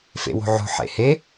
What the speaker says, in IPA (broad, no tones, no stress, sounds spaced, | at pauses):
f ḛ w o̤ ʕ o̤ ħ ḛ h e